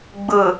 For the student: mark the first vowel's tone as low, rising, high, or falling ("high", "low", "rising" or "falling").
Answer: low